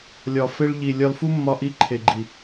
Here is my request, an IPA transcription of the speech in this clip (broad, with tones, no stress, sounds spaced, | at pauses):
lʲ ɒ˨ f e˧ ɭ ʎ i˨ lʲ ɒ˧ l f u˦ mː ɒ˧ ʔ i˧ ǃʰ e˨ ɡ͡ǃ i˨